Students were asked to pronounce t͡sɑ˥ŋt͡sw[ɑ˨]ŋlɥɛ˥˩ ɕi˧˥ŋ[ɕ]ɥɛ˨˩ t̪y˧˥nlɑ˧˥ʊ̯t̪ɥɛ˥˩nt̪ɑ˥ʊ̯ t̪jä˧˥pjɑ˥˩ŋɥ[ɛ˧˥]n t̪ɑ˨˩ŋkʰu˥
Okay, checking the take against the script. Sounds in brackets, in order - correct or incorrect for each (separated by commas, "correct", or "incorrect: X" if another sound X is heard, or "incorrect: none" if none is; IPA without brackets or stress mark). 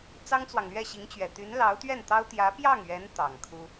correct, incorrect: t͡ɕ, correct